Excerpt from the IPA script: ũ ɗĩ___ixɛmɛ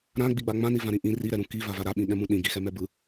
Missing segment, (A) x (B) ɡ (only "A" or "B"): B